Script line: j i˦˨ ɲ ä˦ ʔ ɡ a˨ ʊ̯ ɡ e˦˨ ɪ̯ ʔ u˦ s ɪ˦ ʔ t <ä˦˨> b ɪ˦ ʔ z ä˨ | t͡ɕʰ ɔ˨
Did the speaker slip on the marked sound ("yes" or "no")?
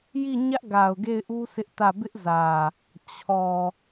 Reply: no